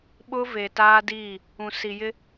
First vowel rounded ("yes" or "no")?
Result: yes